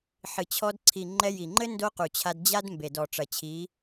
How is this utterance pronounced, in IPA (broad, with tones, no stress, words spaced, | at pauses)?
ħɨ˨t͡ɕʰɔ˧dǀʰi˨ ŋ͡ǃɛ˧ji˨ŋ͡ǃɘ˦ ndo˦qu˨t͡ɕʰa˧d d͡ʑa˦dmbe˨dɔ˨ ʈ͡ʂɐ˨t͡ɕʰi˨˦